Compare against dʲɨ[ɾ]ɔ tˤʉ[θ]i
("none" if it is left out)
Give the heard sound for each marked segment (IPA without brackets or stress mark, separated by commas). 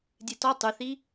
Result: t, θ